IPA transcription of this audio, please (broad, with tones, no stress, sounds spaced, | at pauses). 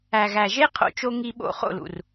æ˨ ɣ æ˨ ʒ e˦ qʰ o̰˧ t͡ʃ o˧ ŋ i˧ ɓ o̰˧ χ o̰˦˨ l ṵ˨ r